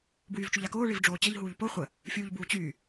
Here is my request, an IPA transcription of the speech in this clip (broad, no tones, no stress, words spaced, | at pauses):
bwyːvt͡ʃuʎakoː ɭivɖ͡ʐoːt͡ɕəʎ ɦuːʎpo χʷə | fʲuːʎbuːt͡ɕyː